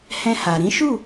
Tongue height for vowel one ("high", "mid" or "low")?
mid